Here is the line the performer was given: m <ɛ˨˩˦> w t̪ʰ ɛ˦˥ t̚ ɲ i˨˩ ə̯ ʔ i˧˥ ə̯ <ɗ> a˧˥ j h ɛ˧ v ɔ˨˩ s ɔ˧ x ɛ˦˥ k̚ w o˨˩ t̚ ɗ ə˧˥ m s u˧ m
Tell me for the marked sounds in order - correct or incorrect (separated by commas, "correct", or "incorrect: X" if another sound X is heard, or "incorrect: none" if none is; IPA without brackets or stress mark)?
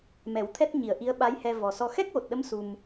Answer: correct, incorrect: ɓ